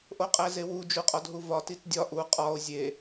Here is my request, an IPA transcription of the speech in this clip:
ʔ o qʼ æ z e w u d͡ʒ u qʼ ɒ d ɦ u v ɒ t i t dʲ ɒ ʔ u qʼ ɒ o̯ zʲ e

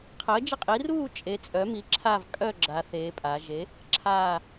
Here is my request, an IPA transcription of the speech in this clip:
qʰ əː˩˥ d͡ʒ ə˦˨ qʼ i˩˥ r uː˦˨ t͡ʃʼ e˩˧ t͡sʼ œ˩˥ m i˩˥ ǁʰ aː˦˨ v kʼ œ˦˨ ɡ͡ǁ a˩˧ θ eː˩˧ pʼ aː˩˧ ʒ e˩˥ | ǁʰ aː˦˨

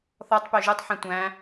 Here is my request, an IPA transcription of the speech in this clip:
θ ɔ tˤ p ø ʒ ɯ tˤ ħ ɛ̃ tʷ æ̃

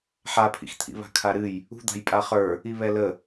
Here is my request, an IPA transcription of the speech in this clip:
ħ a pʰ ḭ x t̪ʰ ḭ β a̤ kʰ a ɾ ɨ j | ṳ d̪ a̤ j pʼ a χ ə˞ | i β ɛ l ə

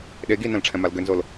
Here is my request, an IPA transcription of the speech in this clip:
ɗ e ɡ i n ɛ̃ l ʈ͡ʂʰ ɛ̃ m a l ɡ ʏ n z o l

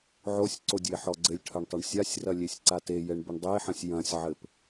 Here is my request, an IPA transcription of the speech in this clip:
ʕ o sʲ ǀ o dʲ e ħ ɔ ɡ͡ǀ ɘ lʲ ʈʰ ɐ ɳ tˤ ɐ ɳ sʲ a sʲ r ɐ lʲ e sʲ ǀ a t e j ɛ ɳ b ɘ ɳ dˤ e ħ ɐ̃ sʲ j ɐ̃ sʲ ʕ ɘ p

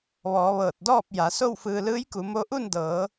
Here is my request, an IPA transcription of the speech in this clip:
ʋ ɔː˩˧ ʋ ɤː˧˩ t̚ d ɔː˥˨ p̚ j a˩˧ s o˥˨ w f ɯː˧ l ɯː˧˥ j k u˩˧ m o˧˥ ʔ u˥˨ n d ɤː˩˧

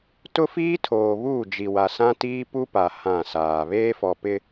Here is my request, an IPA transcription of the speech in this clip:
t ʊ˦ f iː˦ tʰ oː˨ β uː˦˨ d͡ʒ i˨ w a˨ s ã˦ t iː˦ p u˦ p a˨ h ã˦˨ s aː˨ β eː˦ f ɔ˨ p ɪ˦

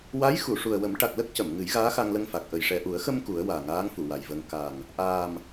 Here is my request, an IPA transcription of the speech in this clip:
w a˧˥ j x u˨˩˨ ʂ u˨˩ ə̯ w ə˨˩˦ m ʈ a˨˩ k̚ l ə˦˥ k̚ c ə˨˩˨ m ŋ ɨ˨˩˦ j ɣ aː˧˥ x a˧ ŋ l ə˧ ŋ f a˨˩ k̚ ʔ ə˨˩ j ʂ ɛ˨˩ ʔ u˨˩˦ ə̯ x ə˧ m k u˨˩˦ ə̯ w aː˨˩ ŋ aː˧˥ ŋ f u˨˩˨ w a˨˩ j v ə˧ ŋ k a˨˩ ŋ | ʔ aː˨˩ m

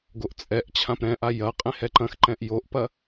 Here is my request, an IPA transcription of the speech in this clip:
ɡ o ʔ t͡sʼ ɛ ʔ t͡ɕʰ ã p ɾ ɛ̃ ʔ a j ɐ qʼ ẽ h ɛ ǃ ɐ̃ x ǃ ɛ̃ ʔ j o ʔ p ɐ

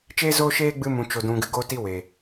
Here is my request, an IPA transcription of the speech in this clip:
t͡ʃ eː˦ z oː˦ ʃ eː˦ ɡ͡b ɨ˧ m ũ˨ t͡ʃ o˨ d ũ˨ ɡ ɨ˨ ɡ o˦ t i˦ w e˨

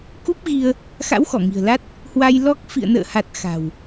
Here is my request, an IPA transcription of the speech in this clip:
k u˦˥ p̚ ɣ i˧ ə̯ | x a̰˧˥ w x ɔ˧˩ ŋ i̤˨˩ ə̯ l a˦˥ t̚ | h w a˧ j l ɔ˦˥ k̚ f ḭ˧˨ ə̯ n ə̰ː˧˨ h a˨˩ t̚ x a̤˨˩ w

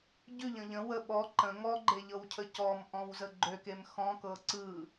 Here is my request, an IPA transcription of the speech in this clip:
ɟ ʉ ʎ ə̃ ʎ ə̃ w ə ɓ ɔ ǃ ə̃ ŋ ɔ ɡ͡ǃ e ʎ ɤ w cʰ ə c ɔ m ʔ ɔ̃ w z ə ɡ͡ǃ ø k e m x ɔ̃ k ɤ ǀ ɯ

